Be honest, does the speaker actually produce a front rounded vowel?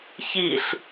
no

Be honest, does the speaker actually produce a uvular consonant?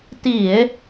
no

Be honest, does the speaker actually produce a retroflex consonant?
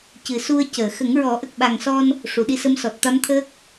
yes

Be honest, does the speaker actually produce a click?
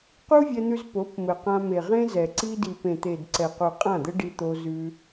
yes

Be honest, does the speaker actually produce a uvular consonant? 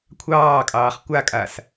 yes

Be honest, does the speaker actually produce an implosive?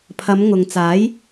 no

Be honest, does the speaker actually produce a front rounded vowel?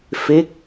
no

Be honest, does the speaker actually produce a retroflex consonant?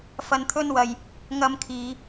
no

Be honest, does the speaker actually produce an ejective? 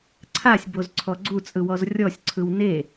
yes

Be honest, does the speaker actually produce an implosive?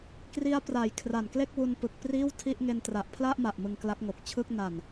no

